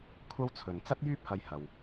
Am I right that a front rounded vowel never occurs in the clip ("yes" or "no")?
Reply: no